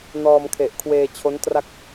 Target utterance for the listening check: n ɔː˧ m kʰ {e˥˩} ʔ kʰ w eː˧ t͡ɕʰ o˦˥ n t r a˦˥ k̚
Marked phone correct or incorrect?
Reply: incorrect: e˨˩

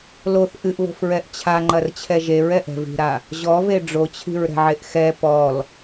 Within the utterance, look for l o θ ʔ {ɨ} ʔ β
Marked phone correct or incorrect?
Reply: correct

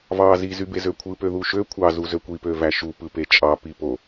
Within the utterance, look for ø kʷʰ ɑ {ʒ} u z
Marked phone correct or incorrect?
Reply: incorrect: z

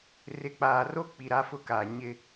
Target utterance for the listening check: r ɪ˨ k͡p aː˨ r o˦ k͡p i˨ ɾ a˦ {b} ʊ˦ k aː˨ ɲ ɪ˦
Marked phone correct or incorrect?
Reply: incorrect: f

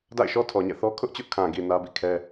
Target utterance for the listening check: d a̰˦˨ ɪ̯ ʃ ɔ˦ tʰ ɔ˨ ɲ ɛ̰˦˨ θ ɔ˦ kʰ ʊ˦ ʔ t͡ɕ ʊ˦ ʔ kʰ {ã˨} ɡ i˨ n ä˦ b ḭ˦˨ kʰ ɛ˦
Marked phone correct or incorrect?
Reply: correct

